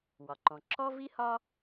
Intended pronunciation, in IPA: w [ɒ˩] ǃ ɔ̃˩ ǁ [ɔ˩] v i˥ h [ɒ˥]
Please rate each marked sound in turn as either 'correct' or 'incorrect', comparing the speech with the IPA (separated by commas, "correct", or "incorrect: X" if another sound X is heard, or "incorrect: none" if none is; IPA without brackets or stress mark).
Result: correct, incorrect: ɔ˥, correct